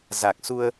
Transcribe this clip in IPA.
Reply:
z a˨˩ k̚ s u˧ ə̯

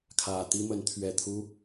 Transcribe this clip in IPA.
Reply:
kʰ ä˨˩ t̪ i˥ m ə˧˥ n t̪ʰ ɥ ɛ˨˩ t̪ʰ u˧˥

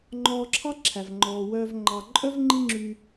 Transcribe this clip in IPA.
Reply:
ŋ͡ǃ ɔː˧ ǁʰ ɑ˦ ǁʰ æ˨ v ŋ͡ǃ ɔː˨ w œː˧ v ŋ͡ǃ ɑ˨ ǃʼ œ˦ v ŋ͡ǃ i˦ ŋ͡ǁ yː˧

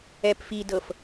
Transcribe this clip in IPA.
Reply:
ɛ p f i d ɤ f

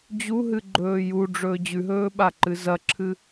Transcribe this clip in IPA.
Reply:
d͡ʑ u ɦ ɨ ɡ͡ǃ ɵː j u ɖ͡ʐ ɵː d͡ʑ ʉ ɦ ɵː ɓ a ǃ ɨ z ɐ ǁʰ ɨ

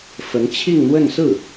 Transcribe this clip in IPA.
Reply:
f ə˧˥ n t͡ɕʰ i˥˧ ŋ n̪ w ə˥˧ n s ɹ̩˥˩

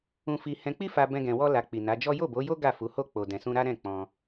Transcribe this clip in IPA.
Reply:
ũ˧ f i˧ h ɛ̃˧ k͡p i˦ f a˧ b ɛ̃˧ ɡ ɛ̃˧ w ɔ˦ l a˧ k͡p i˨ n a˨˦ d͡ʒ ɔ˦ j o˦˨ b o˨˦ j o˦ ɡ a˦˨ f u˨˦ h o˦ k͡p o˧ d ɛ̃˧ s ũ˦ ɾ a˦ ɾ ɛ̃˦˨ k͡p ɔ̃˧

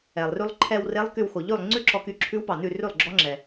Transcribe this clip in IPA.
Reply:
ɛ˩ lˠ r ʉ˧ lˠ ǃʰ ɛ˧ w r e˧˥ lˠ k y˧ w x o˩ ʎ ʉ˥˩ lˠ ŋ͡ǀ ʉ˥˧ ǁ ɔ˧ k y˧˥ ǁʰ ʉ˧˥ w p ɑ˩ n ʉ˥˩ r ʉ˥˩ lˠ ɡ͡ǁ ɔ˧˥ ŋ͡ǁ ɛ˩

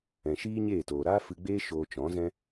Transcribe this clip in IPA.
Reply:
ɛ̃˨ ʃ iː˦ ɲ e˦˨ t oː˨ ɾ aː˦ f ɨ˧ ɡ͡b eː˦ ʃ oː˧ t͡ʃ ɔ̃˨˦ z ɛ̃˦

